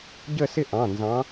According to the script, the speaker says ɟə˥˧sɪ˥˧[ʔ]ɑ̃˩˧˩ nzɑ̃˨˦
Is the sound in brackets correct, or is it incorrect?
correct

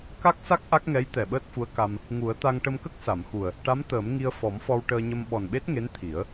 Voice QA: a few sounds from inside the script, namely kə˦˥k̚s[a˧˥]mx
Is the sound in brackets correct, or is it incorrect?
incorrect: a˨˩˨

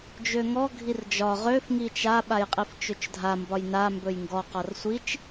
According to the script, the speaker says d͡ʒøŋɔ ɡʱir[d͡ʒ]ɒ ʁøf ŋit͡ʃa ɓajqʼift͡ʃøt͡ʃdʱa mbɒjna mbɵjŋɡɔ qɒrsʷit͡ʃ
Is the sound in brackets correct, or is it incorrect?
correct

